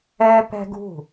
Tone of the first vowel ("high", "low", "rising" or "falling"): high